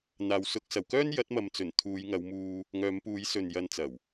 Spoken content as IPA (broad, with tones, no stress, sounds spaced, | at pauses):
n̪ aː˨˧ w s ʊ˨˥ k̚ s ɐ˨˩ w k œː˥ n j ɐ˨˥ t̚ m ɐ˨ m t͡s ɵ˨˩ n t̪ʰ uː˨˧ j ŋ ɐ˨˧ w m uː˧ | ŋ œː˨˧ m p uː˨˧ j s ɵ˨ n j ɐ˨˧ n t͡s ɐ˨˩ w